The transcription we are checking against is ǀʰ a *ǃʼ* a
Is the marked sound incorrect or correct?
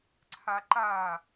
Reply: incorrect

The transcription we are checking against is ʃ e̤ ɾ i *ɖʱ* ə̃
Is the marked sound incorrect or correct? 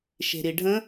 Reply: correct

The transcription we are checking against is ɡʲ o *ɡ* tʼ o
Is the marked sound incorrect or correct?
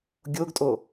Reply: correct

